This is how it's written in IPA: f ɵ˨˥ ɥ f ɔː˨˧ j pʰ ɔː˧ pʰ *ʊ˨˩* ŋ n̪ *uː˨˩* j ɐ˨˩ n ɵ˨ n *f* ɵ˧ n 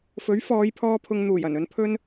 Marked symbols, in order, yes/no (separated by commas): no, yes, no